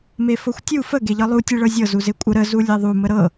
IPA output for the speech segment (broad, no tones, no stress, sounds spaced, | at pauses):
m e f ɤ xʷ tʲ u f ə ɡ e ʎ ɤ lˠ u tʲ e ɭ ɤ zʲ ɤ z u z e kʷʼ ə ɾ ə z u lʲ e ðˤ u m ə ɾ ɤ